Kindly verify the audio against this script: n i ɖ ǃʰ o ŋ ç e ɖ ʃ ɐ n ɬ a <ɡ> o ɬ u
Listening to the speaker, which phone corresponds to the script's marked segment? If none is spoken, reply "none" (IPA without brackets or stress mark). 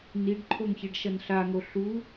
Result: ŋ